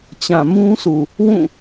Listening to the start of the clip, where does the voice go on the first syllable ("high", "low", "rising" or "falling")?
low